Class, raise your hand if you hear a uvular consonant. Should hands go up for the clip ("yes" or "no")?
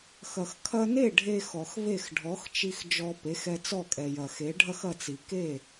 no